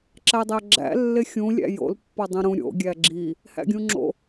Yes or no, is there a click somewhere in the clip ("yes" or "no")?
yes